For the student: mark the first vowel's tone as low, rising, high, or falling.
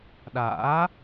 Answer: rising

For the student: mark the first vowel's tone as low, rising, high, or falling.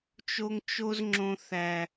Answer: high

